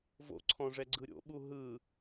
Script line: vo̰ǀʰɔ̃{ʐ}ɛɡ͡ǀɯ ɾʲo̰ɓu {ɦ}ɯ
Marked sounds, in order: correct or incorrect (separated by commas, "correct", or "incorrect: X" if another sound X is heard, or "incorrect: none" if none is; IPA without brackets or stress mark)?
correct, correct